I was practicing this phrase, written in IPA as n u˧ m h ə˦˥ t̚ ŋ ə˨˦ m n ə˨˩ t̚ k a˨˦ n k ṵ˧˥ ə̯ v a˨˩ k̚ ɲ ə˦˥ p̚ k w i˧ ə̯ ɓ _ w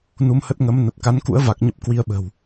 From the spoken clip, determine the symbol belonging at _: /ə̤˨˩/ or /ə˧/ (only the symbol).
ə̤˨˩